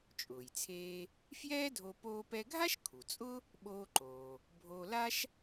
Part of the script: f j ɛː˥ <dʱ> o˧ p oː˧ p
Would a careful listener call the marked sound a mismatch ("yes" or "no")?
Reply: no